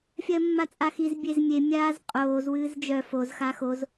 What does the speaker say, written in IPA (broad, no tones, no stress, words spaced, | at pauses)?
fʲɜmːat͡sʼaxiz bʲezmʲe mʲaːzqʼoːz wɨːzd͡ʒœ foz xaxoz